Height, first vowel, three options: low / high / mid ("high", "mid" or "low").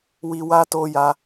high